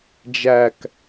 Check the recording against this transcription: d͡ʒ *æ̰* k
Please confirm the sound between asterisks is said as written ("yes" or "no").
no